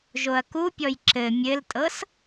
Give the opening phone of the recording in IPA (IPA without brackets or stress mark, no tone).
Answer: ʒ